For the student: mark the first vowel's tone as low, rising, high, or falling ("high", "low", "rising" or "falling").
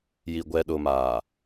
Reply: low